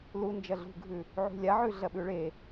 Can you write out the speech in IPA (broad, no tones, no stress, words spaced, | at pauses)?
lu nd͡ʒɐɮṳɡʱʉ | ʕṳlʲaʕʉ ɮɐɓʉɭe